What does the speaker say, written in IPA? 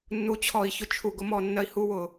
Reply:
nːu˨t͡ɕʰɔ˨i̯çʊ˧ t͡ʃʰu˨ɡʊ˨˦mɔ˧ nːɜ˧i̯hu˦wʊ˨

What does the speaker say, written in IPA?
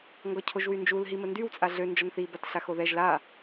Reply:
ŋɡɔcʰoʒwynd͡ʒul ɦiməndyw t͡sʼaɮø nd͡ʒɔnθi batɬaxoðɛʒ la

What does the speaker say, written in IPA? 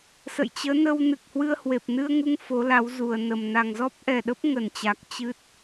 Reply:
sə̰˧˨jt͡ɕəː˨˦nə˧wnɨ˨˩k̚ hwɨ˧ə̯hwe˨˩p̚nɨ˧ə̯ŋu˧ŋ fo˨˦la˨˦wzu˨˩ə̯nə˨˩m na˨˩ŋzɔ˦˥p̚ʔɛ˨˩ɗə˦˥p̚ ŋə˧˩nt͡ɕa˨˩k̚ t͡ɕɨ˦˥t̚

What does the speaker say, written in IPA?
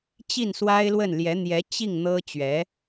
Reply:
t͡ɕi˥˩nswa˥ɪ̯lwə˥˩n ljɛ˧˥n̪jɛ˧˥ t͡ɕi˥˩ŋ n̪ɤ˥ t͡ɕɥɛ˧˥

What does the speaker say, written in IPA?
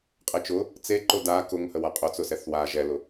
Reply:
qʼet͡ʃʊ | t͡seǃʊ da kʊŋhə waqʼʊt͡sʊ sɛθwa ʒɛlʊ

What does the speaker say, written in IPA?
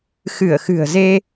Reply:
xɨ˧˩ə̯xɨ̤˨˩ə̯ze˧

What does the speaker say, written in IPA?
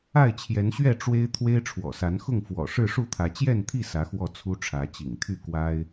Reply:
a˥˨ɪ̯t͡ɕʰjɛ˨˦nɕɥɛ˥˨ ʈ͡ʂwe˦ɪ̯ t̪ʰwe˦ɪ̯ʈ͡ʂʰwɔ̰˨˩sa˨˦nxʊ˥˨ŋ fwɔ̰˨˩ ʂɻ̩˥˨ʂu˥˨t̪ʰä˨˦ t͡ɕjɛ˥˨nt̪ʰi˥˨ sä˨˦xwɔ˥˨ t͡sʰu˦ʈ͡ʂʰä˨˦t͡ɕḭ˨˩ŋ t̪ʰy˥˨kwa˦ɪ̯

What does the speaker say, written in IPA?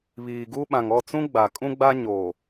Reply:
βiː˨ɡu˦ ɓã˨ŋɔ˦˨t͡sũ˦ ɡ͡ba˨kʼũ˦ɡ͡ba˦ ɲoː˨

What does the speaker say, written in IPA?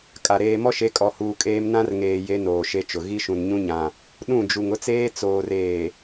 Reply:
kʼa˨ ɾeː˨mɔ˦ʃe˨˦ kʼɔ˨huː˨kʼeː˦m nã˦rŋeː˨ je˦noː˨ʃe˦t͡ʃʊ˨ ɣi˦ʃũ˨nɲũ˦ɲã˨ | ɗũ˦˨d͡ʒu˨ŋ ʊ˦t͡seː˦ t͡soː˨r eː˨

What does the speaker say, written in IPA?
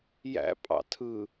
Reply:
jæ̰ pʼɑ̰tʰɯ

